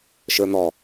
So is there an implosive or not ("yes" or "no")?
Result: no